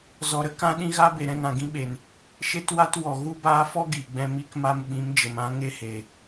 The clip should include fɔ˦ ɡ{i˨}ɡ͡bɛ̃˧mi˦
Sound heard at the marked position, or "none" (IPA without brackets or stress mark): i˨